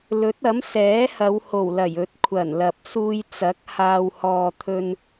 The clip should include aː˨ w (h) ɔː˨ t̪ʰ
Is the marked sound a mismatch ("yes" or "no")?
no